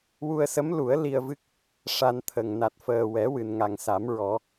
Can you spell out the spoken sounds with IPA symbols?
wu˧ə̯sə˧˥mlu˨˩˦ə̯ li˧ə̯vɨ˦˥k̚ | ʂa˧nt̪ʰə˨˩ŋ na˨˩t̚fəː˨˩wɛ˨˩˦ wɨ˨˩nŋa˨˩ŋ sa˨˩˦mɹɔ˨˩˦

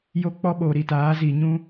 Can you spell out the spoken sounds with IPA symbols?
jo˦k͡pɔ˦ ɓoː˨ɾi˨taː˨˦ zi˨ɲũ˦

